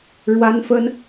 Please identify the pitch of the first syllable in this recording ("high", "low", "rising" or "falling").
high